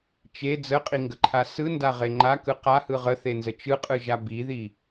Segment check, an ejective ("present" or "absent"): present